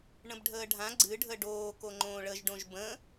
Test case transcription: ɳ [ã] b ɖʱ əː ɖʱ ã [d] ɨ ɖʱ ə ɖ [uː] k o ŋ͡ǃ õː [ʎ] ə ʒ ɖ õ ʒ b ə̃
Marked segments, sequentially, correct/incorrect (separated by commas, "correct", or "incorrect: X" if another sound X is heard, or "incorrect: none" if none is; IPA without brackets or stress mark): incorrect: ə̃, incorrect: ɡ͡ǀ, incorrect: oː, incorrect: ɭ